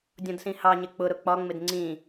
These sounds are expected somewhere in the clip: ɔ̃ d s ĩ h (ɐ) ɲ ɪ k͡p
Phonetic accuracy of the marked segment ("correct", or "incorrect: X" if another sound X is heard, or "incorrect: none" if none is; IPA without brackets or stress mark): incorrect: ɑ